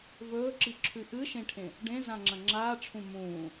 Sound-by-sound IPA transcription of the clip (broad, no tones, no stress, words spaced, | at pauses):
vɵːǁiǁʰʉ ʔɨʃẽʈʰẽ | ɖẽ zãŋ͡ǁɐ̃ŋ͡ǁaːʈ͡ʂʰũ mũː